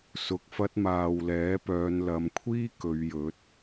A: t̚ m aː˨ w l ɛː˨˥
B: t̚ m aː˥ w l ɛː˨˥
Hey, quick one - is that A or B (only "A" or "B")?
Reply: A